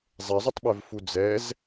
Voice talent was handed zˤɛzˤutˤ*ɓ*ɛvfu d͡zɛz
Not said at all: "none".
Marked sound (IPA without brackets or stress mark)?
ɓ